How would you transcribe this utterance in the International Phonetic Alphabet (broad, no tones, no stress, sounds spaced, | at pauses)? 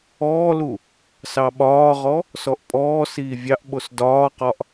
ɔː l u | s ɑ ɓ ɒː ʁ ɔ | s ɔ ʔ pʼ ɔː s iː vʲ ɑ ʔ ɓ o s d ɒː q ɒ ʔ